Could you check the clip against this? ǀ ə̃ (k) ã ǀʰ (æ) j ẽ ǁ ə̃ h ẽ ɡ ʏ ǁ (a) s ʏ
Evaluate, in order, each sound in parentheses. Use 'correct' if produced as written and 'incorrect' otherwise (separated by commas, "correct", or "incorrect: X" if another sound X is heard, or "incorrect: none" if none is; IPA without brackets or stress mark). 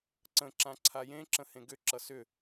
incorrect: ǁ, incorrect: a, incorrect: ʌ